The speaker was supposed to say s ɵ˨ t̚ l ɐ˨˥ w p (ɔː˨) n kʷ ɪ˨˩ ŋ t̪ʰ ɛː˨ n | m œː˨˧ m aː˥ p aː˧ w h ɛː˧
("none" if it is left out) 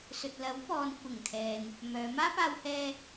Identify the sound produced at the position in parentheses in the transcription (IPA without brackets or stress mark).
ɔː˨